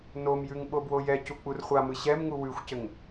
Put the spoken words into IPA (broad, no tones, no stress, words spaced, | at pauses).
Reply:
nomjʉŋ ɓobwojɛcu k͡purχʷamɯ ɕɛmŋu wʉxʷcɘŋ